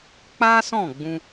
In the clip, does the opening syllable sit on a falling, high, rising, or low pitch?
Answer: high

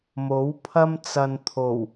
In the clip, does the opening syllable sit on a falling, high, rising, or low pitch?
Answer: rising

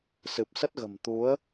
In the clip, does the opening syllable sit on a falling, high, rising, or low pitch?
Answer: low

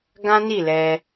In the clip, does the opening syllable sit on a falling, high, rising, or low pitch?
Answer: high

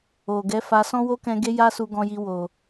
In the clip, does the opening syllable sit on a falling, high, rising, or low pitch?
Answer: low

